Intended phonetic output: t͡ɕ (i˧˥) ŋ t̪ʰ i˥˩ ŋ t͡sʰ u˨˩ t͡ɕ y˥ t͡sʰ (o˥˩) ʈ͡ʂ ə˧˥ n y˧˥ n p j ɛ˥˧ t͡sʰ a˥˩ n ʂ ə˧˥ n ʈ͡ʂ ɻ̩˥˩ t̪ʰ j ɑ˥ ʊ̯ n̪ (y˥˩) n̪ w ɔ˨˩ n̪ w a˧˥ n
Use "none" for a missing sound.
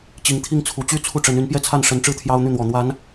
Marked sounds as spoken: i˧˥, u˥˩, y˥˩

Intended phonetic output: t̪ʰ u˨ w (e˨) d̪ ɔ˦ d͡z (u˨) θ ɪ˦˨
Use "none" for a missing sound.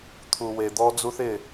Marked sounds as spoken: e˨, u˦

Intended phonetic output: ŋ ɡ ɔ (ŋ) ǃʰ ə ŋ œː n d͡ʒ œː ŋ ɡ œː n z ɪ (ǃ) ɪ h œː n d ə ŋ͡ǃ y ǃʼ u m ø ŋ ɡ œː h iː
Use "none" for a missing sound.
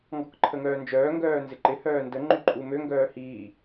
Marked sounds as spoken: k, ǃ

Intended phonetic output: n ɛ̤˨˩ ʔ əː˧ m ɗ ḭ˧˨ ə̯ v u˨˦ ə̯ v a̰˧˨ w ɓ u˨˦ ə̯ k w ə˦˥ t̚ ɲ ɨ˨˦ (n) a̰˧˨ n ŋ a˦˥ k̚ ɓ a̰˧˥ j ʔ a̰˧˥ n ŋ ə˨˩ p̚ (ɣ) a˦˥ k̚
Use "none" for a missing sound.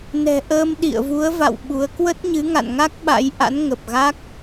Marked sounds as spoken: ŋ, ɣ

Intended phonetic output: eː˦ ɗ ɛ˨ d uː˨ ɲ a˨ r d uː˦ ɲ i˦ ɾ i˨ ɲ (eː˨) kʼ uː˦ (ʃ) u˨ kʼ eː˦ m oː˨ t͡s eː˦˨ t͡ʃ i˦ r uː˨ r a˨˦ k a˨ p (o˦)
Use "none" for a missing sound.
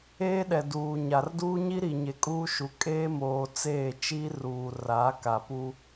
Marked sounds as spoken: e˨, ʃ, u˦

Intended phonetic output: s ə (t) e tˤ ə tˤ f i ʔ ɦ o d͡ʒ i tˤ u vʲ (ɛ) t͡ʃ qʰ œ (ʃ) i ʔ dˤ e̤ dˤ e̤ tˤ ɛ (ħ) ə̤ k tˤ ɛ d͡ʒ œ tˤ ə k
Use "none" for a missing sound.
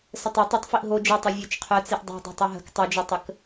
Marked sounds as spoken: tˤ, œ, t͡s, ɦ

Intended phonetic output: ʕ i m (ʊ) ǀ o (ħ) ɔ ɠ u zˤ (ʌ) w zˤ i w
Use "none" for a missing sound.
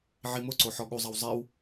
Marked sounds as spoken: ʊ, ħ, ʌ

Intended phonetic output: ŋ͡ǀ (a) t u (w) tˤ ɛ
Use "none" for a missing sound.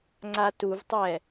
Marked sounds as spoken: a, v

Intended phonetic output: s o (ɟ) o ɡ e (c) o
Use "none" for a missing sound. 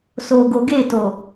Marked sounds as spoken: ɡ, t

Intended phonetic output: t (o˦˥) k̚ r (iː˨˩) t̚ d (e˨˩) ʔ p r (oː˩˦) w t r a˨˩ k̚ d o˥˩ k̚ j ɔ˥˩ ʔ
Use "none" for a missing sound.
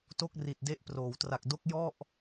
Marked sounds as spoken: o˥˩, i˨˩, e˦˥, oː˩˦

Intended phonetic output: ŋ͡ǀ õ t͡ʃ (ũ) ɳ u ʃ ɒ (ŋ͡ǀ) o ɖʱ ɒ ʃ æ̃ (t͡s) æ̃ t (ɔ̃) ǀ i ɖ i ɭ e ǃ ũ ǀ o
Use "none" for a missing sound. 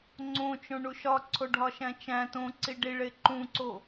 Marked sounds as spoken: õ, ǀʰ, t͡ʃ, õ

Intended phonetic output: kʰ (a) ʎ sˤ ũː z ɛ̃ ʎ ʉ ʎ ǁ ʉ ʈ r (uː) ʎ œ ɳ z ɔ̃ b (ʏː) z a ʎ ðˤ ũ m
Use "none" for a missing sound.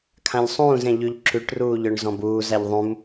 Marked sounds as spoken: ã, uː, uː

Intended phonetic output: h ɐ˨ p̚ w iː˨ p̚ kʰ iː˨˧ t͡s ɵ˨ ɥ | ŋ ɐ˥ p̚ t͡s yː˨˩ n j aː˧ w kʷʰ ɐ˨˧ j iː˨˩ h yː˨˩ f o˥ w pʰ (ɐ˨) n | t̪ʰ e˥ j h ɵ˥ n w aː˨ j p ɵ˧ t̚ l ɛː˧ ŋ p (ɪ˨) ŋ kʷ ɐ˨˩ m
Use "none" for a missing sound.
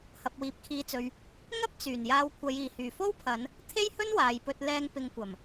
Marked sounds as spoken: ɐ˨˧, ɪ˧

